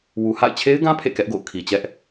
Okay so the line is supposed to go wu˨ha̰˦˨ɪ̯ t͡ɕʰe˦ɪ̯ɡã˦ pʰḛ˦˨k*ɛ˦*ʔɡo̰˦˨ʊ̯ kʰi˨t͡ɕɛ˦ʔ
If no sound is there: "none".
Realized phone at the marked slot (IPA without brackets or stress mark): ɛ˦